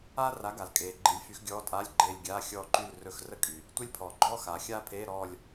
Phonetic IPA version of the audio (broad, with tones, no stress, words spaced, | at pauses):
aː˥ra˨˥ɡa˩lkʼeː˩ ɡ͡ǃi˨˥lʲfy˨˥xɡʲɔː˧˥˧tʼaː˧˥˧lʲ ɡ͡ǃeː˦˨lʲɡʲaː˧˥˧ xʲɔː˦˨ǃy˦˨l rɵ˦˨xrə˥kʼy˩ | tʷe˥lʲpʰɔː˩ɡ͡ǃɔː˥xaː˩ xʲaː˥pʰeː˧˥˧ɾɔː˦˨lʲ